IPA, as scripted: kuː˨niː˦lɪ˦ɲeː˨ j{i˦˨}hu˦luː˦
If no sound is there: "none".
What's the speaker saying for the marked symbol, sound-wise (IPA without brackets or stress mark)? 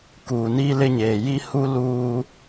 i˦